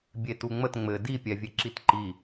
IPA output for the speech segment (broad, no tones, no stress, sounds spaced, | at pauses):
bʲ e t u ŋ͡m ə t ŋ͡m ɘ d i pʲ ɛ vʲ e ǁ i t ǃ i